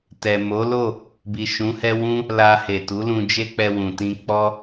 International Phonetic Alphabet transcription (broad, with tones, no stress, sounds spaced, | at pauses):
t ɛ˨ m o˨˦ l o˦˨ | b i˨ ʃ ũ˨˦ h ɛ˦ w ũ˦ | l a˧ h e˨ t u˨˦ l ũ˧ d͡ʒ e˦ k͡p ɛ˧ w ũ˨ t ĩ˧ k͡p ɔ˦